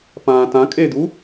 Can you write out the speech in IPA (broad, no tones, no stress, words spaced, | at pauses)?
pãːtãkʼed̪u